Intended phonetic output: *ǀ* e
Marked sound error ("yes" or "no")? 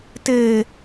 yes